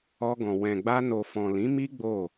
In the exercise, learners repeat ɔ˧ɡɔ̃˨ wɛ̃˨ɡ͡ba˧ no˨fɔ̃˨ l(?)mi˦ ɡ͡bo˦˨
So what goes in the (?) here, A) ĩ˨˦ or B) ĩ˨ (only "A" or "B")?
A